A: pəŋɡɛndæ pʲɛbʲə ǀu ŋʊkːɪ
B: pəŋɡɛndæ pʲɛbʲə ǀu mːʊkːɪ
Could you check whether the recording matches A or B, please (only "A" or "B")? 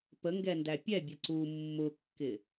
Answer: B